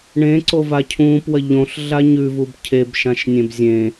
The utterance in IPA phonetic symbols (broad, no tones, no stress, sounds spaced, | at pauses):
ɳ ẽ ǀ o v a cʰ ũː p w ɐ ʎ õ ɬ ɮ a ɲ ʉ v u b cʰ e b ʃ ã ʃ nʲ ẽ b zʲ ẽ